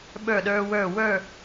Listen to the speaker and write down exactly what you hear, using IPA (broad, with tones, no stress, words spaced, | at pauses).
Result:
ɓə˞˥˧ɗə˞˥wə˞˥˧ wə˞˥˧